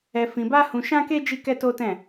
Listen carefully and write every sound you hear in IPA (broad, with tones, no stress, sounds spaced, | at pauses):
ɛ˧ f ĩ˧ b a˦ h ũ˧ ʃ ã˦ k e˦ d͡ʒ i˦ k ɛ˦ t o˦ t ɛ̃˦˨